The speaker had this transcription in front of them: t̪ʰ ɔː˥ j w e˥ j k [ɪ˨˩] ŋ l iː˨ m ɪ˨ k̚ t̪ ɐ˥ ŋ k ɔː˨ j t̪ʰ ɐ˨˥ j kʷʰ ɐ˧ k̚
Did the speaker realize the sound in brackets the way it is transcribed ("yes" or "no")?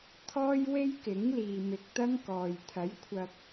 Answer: no